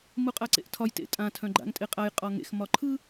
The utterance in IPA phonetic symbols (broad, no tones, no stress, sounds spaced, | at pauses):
m u qʼ a ǀ ḛ ʔ tʰ ɒ j t ḛ tʼ ã tʰ œ̃ ɡ͡ǃ a̰ ŋ tʼ e qʼ a j qʼ ɒ ŋ ḛ x m ɒ ǃʰ ɯ